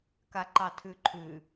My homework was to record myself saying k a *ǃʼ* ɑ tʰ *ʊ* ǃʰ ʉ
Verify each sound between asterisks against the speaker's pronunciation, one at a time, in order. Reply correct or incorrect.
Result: incorrect, incorrect

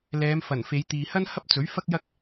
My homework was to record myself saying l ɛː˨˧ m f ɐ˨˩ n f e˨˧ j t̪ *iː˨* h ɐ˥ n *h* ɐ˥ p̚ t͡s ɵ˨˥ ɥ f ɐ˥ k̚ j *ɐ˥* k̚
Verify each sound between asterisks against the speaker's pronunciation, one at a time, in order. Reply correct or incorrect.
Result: correct, correct, correct

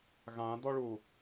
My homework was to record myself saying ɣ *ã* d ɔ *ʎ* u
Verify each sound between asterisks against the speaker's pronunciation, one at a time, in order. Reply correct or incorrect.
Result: correct, incorrect

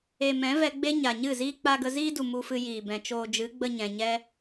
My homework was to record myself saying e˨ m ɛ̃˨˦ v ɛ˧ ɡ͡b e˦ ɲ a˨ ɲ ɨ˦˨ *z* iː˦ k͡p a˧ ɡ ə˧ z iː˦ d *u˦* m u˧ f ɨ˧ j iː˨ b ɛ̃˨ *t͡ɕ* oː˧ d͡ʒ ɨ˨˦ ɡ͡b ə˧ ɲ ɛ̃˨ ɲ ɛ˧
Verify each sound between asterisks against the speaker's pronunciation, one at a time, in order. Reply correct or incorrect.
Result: correct, incorrect, incorrect

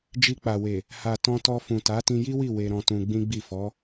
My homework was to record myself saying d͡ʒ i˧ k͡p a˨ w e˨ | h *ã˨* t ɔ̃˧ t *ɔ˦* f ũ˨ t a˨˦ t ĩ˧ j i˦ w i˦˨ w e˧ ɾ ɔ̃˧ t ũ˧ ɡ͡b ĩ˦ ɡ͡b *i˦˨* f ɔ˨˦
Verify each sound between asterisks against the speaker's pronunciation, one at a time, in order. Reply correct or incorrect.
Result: incorrect, incorrect, correct

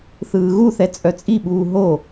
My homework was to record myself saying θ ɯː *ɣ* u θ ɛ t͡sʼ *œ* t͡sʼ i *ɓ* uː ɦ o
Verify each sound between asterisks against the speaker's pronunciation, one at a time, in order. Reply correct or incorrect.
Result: correct, correct, correct

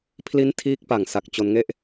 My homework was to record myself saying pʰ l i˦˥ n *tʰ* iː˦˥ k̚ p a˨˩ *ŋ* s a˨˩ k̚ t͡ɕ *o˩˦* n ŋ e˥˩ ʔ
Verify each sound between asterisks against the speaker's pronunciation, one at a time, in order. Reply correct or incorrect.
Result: correct, correct, incorrect

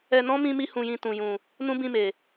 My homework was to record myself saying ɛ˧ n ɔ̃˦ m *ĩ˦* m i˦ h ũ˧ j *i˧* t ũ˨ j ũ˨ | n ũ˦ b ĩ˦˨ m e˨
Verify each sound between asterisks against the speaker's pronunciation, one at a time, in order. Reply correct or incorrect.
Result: correct, incorrect

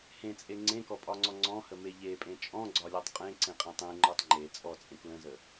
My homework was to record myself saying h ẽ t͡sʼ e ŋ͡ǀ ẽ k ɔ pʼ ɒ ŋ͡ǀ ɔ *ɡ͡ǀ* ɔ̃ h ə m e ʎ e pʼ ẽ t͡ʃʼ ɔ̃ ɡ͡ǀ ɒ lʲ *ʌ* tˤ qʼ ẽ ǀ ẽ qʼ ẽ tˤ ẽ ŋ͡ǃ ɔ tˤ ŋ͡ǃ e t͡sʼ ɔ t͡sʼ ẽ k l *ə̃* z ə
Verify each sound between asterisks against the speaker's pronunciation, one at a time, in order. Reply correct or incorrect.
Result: incorrect, incorrect, correct

